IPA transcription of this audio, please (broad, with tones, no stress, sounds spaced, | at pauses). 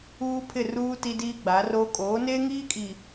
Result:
uː˦ pʰ ɪ˦˨ r uː˦ t i˦ d iː˦ ɡ͡b a˨˦ r oː˦ kʼ oː˨˦ n eː˦ ŋ iː˦ kʼ i˨